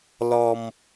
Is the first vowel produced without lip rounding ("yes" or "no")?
no